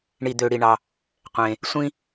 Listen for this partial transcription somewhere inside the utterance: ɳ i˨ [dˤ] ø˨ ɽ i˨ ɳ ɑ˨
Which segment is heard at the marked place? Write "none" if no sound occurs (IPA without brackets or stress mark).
d̪